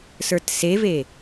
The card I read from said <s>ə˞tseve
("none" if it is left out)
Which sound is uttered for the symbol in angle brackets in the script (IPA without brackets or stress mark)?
s